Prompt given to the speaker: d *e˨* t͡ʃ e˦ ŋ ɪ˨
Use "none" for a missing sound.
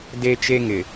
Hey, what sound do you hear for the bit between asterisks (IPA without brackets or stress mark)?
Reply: e˦